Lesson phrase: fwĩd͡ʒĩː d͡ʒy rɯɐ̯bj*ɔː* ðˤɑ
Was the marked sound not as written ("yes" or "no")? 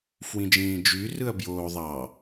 yes